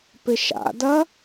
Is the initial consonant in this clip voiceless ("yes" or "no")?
yes